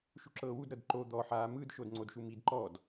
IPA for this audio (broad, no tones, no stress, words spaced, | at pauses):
ʃuǁɤːwud ɾɤdǃo d̪ɔ ħaːmɯd ʃodŋ͡ǀodʃumid ǃɔd